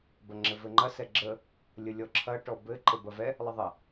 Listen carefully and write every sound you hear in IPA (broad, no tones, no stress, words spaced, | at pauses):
bɐŋ͡ǁɘvɘŋ͡ǃɐ sɛɡ͡ǁə | lʲəlʲɔǁʰɐ ʈɔbɘ ǃɘbɐvɛ | lˠəðˤɐ